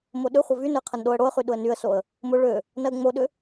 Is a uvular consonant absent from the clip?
no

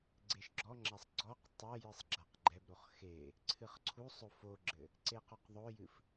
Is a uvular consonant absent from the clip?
no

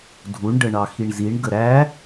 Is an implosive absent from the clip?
yes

